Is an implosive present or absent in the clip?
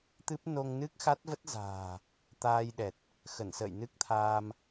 present